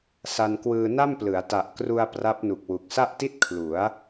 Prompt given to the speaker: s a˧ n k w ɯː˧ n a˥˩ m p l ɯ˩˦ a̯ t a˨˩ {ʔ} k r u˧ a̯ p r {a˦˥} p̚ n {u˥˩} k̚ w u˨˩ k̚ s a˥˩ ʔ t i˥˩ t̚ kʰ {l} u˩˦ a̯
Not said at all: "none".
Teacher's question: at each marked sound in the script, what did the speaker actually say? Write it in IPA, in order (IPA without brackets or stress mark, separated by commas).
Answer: ʔ, a˦˥, u˨˩, l